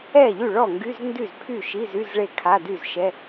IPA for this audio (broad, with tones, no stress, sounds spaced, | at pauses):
ɛ˥˩ ʎ y˥˩ ɭ ɔ˥˩ ŋ ɡ y˧˥˧ z n d y˥˩ z pʰ y˥˩ ʃ i˧˥˧ z y˧˥˧ z ɭ e˥˩ kʰ a˧˥˧ d y˥˩ z ʃ ɛ˧˥˧